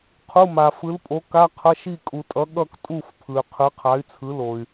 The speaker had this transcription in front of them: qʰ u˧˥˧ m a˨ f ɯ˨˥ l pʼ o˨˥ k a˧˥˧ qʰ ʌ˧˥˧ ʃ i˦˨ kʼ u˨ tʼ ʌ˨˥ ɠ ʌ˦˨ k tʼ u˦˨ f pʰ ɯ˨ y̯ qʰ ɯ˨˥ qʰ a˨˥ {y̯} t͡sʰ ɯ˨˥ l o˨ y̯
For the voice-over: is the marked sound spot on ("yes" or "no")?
yes